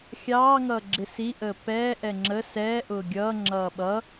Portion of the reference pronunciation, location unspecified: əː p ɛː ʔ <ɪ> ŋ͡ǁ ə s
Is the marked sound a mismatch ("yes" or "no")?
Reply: yes